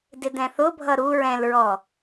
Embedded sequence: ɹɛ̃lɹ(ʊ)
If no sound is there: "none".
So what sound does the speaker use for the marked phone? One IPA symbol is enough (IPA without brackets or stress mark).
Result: ɔ